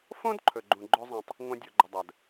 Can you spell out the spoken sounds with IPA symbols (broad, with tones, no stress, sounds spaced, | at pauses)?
f õ˦ d ǃʰ ɵ˨ ɡ͡ǃ ũ˨ ɡ͡ǃ ɵ˦ zˤ ɛ̃˧ tˤ | ŋʷ ã˧ dʲ o˨ ɡ͡ǃ ə˨ dˤ ɜ˨ d